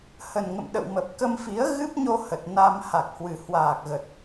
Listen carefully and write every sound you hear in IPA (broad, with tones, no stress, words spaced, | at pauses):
hə˨˩nŋə̰˧˨m ɗə̰˧˨wmə˨˩p̚kə˧mfi˨˦ə̯ ɣɨ˦˥p̚ɲo˧ hə˨˩t̚na˧m ha˨˩k̚hwɨ˨˩ hwaː˨˩k̚ɣə˨˩t̚